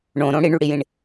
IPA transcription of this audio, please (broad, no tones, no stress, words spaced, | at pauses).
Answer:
ɳõɾõ ɽiɳyɽijĩɳ